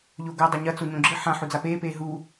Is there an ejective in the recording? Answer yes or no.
no